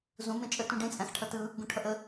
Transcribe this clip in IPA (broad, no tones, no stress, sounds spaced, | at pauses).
z ũ m ẽ t͡ʃʼ ə t ũ ɖ ẽ t͡sʼ æ̃ x ʈʰ ʌ t ɯ | ɡ ũ ʈʰ ʌ ʔ ə